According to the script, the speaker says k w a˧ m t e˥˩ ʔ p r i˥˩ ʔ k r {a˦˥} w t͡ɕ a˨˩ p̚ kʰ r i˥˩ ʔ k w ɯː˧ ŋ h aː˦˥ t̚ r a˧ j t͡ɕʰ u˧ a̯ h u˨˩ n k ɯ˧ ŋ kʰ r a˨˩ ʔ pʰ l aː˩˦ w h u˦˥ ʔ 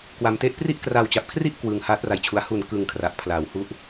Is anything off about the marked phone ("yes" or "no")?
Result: yes